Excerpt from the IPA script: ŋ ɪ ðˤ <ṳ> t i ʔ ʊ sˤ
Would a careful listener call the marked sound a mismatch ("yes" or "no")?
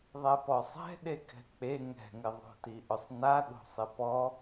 yes